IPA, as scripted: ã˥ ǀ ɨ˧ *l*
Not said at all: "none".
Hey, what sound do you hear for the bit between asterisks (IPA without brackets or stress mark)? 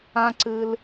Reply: l